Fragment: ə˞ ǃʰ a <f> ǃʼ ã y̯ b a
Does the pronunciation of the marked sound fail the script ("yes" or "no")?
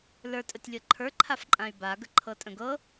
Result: no